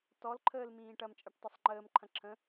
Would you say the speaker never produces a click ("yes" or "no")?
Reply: no